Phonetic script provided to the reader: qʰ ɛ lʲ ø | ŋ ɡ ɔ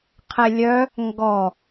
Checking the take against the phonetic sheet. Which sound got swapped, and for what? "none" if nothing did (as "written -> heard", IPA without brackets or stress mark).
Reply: ø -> œ